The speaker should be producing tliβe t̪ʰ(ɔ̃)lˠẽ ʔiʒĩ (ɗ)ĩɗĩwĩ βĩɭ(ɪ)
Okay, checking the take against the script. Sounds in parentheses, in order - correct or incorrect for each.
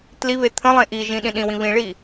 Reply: incorrect: ə̃, correct, incorrect: i

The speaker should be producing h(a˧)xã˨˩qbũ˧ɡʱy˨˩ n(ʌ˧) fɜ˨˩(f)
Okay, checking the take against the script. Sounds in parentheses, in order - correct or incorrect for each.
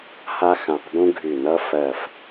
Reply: correct, correct, correct

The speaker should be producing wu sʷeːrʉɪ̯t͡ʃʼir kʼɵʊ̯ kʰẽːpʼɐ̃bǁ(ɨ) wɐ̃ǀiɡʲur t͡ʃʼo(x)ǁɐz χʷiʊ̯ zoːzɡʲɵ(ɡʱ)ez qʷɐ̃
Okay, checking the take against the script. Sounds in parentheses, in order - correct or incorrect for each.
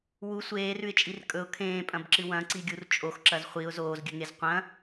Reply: correct, correct, incorrect: ŋ

